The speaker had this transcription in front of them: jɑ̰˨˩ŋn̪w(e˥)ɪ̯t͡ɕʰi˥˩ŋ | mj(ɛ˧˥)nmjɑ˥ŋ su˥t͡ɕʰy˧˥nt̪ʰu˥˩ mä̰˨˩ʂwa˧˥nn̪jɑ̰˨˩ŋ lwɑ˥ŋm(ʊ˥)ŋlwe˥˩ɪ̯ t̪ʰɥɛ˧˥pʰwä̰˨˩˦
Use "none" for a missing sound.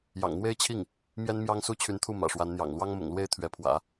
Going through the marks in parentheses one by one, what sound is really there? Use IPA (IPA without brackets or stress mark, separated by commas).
e˥, ɛ˥, ʊ̰˨˩